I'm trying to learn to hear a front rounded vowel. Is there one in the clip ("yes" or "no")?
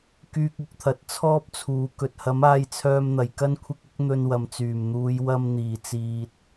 yes